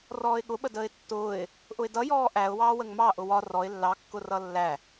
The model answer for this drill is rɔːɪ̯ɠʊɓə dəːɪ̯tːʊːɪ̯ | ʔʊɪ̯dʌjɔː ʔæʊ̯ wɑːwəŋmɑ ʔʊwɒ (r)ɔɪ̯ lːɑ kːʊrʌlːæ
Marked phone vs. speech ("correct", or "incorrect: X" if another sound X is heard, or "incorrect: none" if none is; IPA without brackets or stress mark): correct